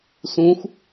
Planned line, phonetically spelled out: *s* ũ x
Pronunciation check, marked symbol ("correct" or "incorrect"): correct